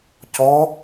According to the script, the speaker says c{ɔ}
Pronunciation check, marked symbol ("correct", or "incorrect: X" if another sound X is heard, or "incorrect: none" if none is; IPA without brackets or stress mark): correct